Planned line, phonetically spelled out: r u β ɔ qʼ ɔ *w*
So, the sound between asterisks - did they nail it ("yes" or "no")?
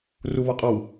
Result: yes